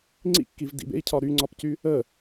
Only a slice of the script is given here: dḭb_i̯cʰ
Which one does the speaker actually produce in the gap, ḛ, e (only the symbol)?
ḛ